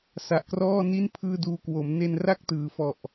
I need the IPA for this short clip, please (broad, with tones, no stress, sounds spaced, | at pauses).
s a˨˩ ʔ k r ɔː˥˩ n i˥˩ n pʰ ɯː˥˩ d uː˦˥ k w o˩˦ m n e˧ n r a˥˩ k̚ t ɯː˩˦ f ɔ˨˩ ʔ